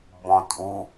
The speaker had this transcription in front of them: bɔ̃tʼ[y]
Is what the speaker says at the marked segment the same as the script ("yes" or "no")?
no